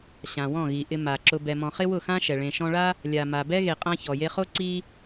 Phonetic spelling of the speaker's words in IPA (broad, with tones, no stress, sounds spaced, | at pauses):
ɕ ã˨ w ɔ̃˦˨ ɣ i˨ ʔ ɪ˧ m a˨ ǁ ʊ˨ b ɛ˨ m ɔ̃˨ χ ɪ˦ w ʊ˦˨ x ã˦ ʃ ɛ˨ ɭ ẽ˨ ʃ ɔ̃˧ ɭ a˦ | lʲ a˨ m a˨ b ɛ˦ ɣ e˨ qʼ ã˧ ç ɔ˨ j e˧ χ o˦ ǀ i˦